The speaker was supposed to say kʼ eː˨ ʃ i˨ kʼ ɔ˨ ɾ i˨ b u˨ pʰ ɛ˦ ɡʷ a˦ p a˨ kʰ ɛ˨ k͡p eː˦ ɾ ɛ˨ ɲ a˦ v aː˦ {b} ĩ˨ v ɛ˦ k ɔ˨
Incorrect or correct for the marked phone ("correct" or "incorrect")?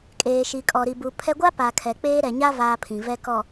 incorrect